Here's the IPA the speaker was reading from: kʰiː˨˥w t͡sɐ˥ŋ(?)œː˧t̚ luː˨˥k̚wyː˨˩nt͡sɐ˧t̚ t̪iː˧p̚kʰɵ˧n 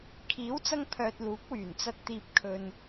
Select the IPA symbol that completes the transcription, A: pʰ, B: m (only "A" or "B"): A